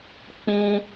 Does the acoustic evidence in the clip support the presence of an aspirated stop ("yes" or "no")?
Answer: no